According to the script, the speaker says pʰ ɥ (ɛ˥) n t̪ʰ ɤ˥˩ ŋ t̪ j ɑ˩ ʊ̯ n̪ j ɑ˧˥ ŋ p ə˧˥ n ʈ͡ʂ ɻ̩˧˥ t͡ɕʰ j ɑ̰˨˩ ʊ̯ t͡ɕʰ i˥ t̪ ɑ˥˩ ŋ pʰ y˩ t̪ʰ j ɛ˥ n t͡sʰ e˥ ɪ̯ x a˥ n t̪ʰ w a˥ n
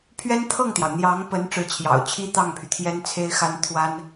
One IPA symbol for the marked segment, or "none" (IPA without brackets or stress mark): ɛ˥